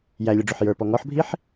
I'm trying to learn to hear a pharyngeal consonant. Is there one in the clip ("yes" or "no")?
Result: yes